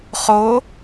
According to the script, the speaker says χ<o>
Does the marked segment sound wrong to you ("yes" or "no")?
no